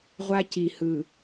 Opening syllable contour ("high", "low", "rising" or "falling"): high